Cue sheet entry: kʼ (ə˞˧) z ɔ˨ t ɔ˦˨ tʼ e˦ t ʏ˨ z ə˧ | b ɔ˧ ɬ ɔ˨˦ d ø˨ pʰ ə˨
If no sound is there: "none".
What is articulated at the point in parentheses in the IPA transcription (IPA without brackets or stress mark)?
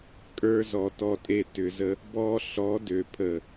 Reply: ə˞˧